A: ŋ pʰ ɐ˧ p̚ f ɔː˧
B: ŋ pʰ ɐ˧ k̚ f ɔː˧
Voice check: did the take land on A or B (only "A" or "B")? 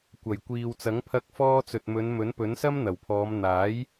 B